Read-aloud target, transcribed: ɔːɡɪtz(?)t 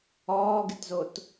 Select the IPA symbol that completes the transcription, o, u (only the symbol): o